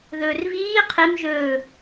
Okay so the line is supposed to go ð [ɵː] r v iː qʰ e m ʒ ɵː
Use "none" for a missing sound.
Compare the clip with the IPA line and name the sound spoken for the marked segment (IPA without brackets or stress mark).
ɵː